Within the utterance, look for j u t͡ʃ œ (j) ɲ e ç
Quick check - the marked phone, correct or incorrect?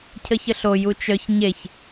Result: incorrect